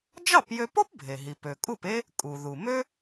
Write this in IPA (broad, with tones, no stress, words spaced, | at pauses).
d͡ʒɑ˥˩pjø˧po˥p bʱe˩ɦi˩p ø˩kʼu˥˩pe˥ | kʼu˩ ðu˩ mø˥